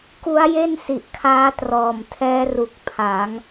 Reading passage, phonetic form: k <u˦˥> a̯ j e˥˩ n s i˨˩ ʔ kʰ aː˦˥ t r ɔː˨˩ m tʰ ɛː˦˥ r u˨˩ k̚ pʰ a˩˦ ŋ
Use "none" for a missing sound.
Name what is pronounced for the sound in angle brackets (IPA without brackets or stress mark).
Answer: u˦˥